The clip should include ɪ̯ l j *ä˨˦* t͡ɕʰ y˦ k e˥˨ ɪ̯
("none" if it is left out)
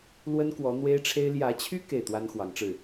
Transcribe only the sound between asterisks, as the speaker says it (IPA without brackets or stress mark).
ä˨˦